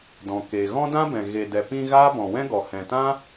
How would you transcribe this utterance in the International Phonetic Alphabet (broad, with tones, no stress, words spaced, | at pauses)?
dɔ̃˨ ke˨ ɣɔ̃˦dã˦bɛ̃˨ ɣe˨dɛ˨pĩ˧ ɣaː˦ bɔ̃˨wɛ̃˦ɡɔ˨ hɛ̃˨tã˦